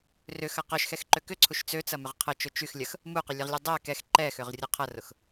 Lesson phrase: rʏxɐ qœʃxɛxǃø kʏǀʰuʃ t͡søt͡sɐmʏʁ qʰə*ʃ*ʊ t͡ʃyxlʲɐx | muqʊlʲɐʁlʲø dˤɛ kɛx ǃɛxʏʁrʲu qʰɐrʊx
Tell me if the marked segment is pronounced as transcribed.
no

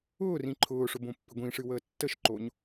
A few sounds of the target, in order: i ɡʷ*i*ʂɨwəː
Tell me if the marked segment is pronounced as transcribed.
no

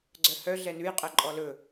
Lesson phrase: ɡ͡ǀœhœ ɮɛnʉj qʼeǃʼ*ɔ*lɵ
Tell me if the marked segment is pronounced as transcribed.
yes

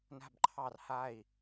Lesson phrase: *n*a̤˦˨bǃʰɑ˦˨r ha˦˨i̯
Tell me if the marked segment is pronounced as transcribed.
yes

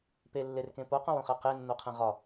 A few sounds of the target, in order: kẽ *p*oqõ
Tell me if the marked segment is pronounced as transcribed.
yes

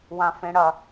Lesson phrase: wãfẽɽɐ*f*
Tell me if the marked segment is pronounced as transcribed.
no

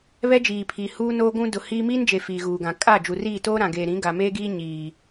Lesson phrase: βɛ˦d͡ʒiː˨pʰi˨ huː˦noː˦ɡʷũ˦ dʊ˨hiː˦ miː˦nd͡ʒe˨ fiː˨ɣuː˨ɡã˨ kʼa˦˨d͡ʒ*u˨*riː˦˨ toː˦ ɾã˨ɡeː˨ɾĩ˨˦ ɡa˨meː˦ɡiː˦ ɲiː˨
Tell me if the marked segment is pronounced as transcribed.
yes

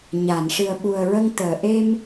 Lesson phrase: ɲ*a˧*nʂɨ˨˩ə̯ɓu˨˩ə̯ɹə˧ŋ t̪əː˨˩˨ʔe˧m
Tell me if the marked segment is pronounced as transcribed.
no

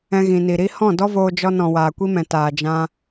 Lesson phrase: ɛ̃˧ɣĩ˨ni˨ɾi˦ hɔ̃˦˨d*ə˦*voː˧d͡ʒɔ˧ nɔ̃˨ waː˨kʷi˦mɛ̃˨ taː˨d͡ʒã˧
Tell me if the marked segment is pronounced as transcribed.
no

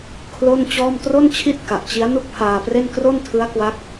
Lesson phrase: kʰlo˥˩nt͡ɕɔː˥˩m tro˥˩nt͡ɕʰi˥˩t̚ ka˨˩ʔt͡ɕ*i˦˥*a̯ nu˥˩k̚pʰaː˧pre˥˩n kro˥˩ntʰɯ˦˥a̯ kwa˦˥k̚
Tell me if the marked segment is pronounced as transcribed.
yes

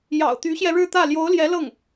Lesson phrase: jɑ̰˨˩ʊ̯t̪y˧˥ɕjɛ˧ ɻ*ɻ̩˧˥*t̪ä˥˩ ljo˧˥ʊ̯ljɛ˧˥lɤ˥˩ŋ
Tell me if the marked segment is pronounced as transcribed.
no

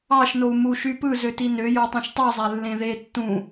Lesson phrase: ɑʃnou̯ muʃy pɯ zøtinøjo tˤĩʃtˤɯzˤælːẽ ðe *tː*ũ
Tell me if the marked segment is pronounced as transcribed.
yes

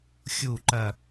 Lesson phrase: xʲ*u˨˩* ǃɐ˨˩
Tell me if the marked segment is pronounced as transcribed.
yes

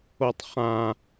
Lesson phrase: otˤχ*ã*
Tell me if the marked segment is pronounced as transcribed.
yes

